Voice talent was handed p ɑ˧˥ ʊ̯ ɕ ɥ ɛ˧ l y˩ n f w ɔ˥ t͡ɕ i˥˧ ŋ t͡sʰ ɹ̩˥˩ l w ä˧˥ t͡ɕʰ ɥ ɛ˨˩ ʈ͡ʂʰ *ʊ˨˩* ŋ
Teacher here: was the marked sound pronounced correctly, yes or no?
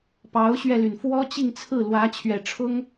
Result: no